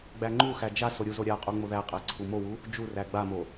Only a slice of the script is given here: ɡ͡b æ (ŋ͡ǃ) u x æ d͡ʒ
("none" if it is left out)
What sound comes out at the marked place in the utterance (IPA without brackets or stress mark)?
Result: ŋ͡ǃ